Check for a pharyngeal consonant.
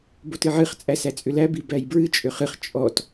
present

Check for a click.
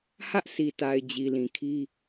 absent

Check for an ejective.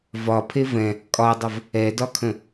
present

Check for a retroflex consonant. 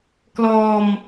absent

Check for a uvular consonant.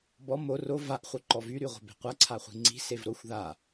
present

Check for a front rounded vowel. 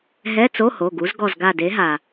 absent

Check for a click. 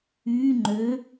present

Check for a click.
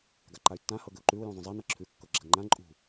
present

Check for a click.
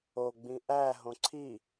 present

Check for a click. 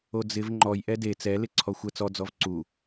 present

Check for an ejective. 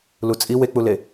present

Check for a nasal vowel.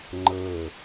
absent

